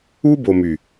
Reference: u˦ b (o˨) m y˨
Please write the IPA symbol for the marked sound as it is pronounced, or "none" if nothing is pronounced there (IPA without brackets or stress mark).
o˨